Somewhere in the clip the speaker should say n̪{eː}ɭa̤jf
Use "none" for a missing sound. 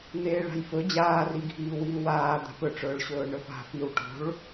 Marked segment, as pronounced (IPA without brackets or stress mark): eː